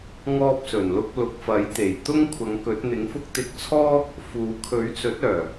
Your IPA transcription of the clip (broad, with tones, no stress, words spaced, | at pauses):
ŋɔː˥p̚sɵ˨˩nlʊ˥k̚ lʊ˨k̚fɐ˨˥jt̪e˨˩j t̪ʊ˥ŋ kʷʰɐ˨˧ŋkɵ˨˥t̚n̪ɪ˨˥ŋfʊ˥k̚ t̪ɪ˧k̚t͡sʰɔː˥ | fuː˨˧ kʰɵ˨˥ɥt͡sɵ˨˥t̚ œː˨˩